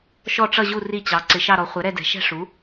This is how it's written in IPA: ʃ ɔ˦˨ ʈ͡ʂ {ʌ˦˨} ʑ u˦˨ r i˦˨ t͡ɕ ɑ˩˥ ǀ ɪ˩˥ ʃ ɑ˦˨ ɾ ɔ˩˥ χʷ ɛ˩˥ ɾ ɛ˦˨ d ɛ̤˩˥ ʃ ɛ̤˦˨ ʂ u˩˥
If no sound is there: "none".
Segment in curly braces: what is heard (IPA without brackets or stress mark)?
ʌ˦˨